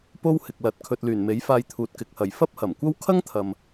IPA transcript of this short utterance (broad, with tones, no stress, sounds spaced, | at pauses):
p o˥ w h ɪ˨ k̚ l ɐ˨˥ t̚ kʰ ɵ˨ t̚ l yː˨˩ n m e˨˥ j f aː˧ j t̪ʰ uː˨ t̚ k ɪ˨ k̚ h ɐ˨˩ j f ɐ˥ p̚ h ɐ˨˩ m kʷ ɐ˥ w kʰ ɐ˥ ŋ t̪ʰ ɐ˨ m